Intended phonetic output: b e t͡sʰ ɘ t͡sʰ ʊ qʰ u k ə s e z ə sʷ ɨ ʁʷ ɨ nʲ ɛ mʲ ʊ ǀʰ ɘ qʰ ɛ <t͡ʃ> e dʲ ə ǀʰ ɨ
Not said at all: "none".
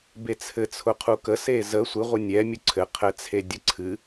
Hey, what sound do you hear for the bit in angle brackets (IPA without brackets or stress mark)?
t͡sʰ